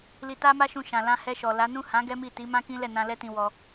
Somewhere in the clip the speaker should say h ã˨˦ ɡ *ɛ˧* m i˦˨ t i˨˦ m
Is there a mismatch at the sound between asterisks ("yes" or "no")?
yes